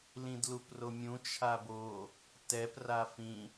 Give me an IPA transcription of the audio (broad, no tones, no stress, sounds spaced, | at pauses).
l ĩ d l u p r o mʲ ũ t͡ʃʰ a b o | t ɛ p r a f ĩ